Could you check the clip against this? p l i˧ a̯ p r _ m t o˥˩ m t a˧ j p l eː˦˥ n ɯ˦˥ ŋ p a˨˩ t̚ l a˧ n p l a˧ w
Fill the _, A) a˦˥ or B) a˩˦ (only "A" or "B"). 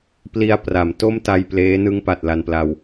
B